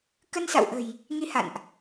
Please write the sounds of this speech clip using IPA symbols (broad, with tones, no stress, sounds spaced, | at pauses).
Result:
k ə˧ n s a̰˧˨ w ʔ ə̤˨˩ j | ŋ i˨˦ h a̰˧˨ n ʔ